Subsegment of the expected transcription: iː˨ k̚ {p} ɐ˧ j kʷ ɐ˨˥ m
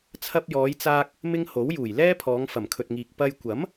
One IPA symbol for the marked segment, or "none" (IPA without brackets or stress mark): p